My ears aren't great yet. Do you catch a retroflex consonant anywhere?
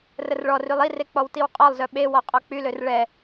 yes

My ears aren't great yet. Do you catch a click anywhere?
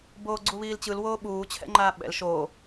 yes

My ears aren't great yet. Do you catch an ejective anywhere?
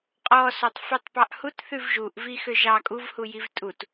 yes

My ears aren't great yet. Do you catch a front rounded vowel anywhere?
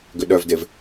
yes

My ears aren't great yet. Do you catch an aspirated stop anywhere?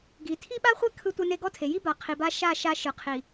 yes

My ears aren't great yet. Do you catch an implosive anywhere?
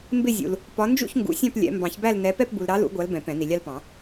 no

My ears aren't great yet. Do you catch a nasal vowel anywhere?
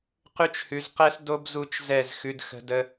no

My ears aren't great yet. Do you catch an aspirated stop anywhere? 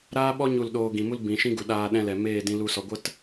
no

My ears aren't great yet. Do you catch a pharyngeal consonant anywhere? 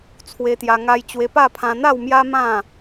no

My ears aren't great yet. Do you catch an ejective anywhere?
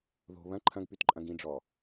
yes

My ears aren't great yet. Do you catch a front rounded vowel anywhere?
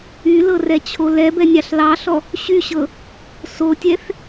yes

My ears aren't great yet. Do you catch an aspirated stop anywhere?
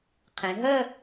yes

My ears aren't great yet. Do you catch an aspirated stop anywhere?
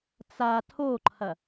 yes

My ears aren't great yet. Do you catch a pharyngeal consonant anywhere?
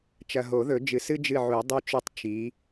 yes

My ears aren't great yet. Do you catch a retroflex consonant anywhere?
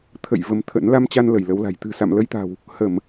no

